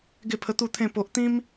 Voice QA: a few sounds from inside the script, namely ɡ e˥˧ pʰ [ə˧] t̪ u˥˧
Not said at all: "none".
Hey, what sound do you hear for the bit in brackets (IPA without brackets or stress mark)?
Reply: ə˧